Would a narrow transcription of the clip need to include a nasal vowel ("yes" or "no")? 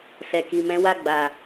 yes